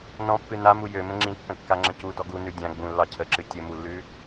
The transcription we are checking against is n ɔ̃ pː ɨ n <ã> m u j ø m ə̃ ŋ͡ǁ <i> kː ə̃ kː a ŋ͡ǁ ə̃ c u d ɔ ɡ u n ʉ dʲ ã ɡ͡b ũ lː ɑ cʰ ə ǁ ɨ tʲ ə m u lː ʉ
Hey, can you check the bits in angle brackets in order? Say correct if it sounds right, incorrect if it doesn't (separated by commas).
incorrect, incorrect